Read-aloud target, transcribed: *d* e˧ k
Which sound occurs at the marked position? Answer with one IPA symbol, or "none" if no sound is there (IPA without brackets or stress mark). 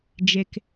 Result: d͡ʒ